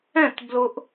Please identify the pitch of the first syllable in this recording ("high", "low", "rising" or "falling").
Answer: falling